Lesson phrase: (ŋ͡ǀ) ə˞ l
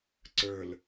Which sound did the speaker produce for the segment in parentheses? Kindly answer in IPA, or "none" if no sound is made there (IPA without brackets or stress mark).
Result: ǀ